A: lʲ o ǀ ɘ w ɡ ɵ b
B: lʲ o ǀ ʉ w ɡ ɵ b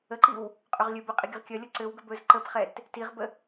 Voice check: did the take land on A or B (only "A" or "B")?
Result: A